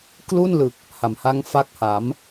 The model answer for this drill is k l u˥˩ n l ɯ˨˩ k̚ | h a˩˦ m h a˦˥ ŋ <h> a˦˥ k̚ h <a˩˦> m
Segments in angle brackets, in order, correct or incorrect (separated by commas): incorrect, correct